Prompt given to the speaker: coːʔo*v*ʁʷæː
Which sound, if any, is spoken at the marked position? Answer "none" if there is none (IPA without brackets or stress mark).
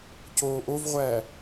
v